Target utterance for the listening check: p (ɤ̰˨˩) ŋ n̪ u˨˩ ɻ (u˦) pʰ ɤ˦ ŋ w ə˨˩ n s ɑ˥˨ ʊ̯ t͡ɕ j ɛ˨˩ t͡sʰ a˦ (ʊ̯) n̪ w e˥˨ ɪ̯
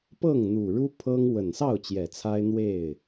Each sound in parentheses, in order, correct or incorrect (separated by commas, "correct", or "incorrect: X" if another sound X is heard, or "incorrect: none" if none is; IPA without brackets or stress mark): incorrect: ɤ˥˨, correct, incorrect: ɪ̯